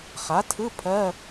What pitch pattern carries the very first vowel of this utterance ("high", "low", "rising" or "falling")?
rising